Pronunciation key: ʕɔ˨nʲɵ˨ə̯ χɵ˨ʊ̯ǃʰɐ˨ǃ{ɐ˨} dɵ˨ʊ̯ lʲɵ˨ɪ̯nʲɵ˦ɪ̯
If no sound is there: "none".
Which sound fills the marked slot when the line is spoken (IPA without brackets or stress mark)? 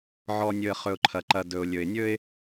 ɐ˨